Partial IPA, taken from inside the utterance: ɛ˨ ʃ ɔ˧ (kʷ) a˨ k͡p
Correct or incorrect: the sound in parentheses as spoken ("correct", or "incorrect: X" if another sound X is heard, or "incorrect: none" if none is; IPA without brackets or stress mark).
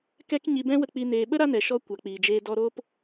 correct